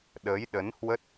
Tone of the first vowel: rising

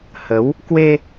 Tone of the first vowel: rising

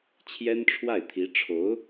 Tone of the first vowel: high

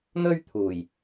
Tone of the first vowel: high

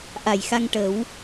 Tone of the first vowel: low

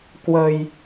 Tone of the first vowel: low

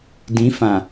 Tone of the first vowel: rising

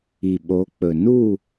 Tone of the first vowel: low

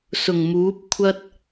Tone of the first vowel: low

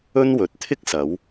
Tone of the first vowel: high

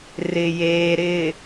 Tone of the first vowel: low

